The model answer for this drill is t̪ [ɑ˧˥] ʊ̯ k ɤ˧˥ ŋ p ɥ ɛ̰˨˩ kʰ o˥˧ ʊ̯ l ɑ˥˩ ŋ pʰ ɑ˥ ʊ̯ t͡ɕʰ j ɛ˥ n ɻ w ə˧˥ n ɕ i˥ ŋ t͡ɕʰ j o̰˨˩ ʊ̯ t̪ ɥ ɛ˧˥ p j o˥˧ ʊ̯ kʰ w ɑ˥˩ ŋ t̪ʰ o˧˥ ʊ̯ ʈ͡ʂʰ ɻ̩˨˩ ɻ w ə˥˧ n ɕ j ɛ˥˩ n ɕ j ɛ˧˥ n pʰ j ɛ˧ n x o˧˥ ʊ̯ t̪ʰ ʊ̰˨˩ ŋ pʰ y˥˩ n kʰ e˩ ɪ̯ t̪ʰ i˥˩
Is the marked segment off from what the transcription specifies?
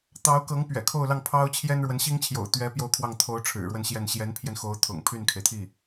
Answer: no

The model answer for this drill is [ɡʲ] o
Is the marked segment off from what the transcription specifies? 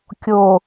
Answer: yes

